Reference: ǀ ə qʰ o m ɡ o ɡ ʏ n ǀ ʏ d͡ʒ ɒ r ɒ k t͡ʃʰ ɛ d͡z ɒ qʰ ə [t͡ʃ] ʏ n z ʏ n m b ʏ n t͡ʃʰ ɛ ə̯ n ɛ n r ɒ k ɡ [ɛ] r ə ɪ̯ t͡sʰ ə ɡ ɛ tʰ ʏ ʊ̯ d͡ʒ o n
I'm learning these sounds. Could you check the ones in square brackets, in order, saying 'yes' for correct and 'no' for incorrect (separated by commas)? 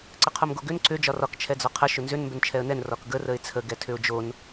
no, no